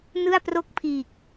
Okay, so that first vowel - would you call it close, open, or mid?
close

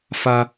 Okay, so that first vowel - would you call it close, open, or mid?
open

